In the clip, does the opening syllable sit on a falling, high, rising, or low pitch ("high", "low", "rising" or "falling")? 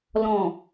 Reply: low